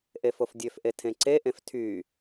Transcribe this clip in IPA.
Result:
ʔ e f o f dʲ ø f ʔ e tʰ ẽ ǀ e ʔ ẽ f tʰ y

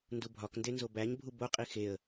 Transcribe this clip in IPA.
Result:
n d u bʱ ɒ k n d e n z o b æ ɲ bʱ u b o qʼ i x e ə̯

